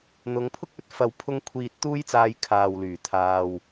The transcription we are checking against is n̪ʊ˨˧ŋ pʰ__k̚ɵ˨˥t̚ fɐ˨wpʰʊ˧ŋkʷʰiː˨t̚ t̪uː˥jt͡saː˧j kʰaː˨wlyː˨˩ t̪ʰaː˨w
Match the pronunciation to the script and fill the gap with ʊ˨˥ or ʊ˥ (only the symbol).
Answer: ʊ˥